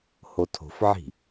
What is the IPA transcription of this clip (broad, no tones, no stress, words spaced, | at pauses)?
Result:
hotʰo̤fʕi̤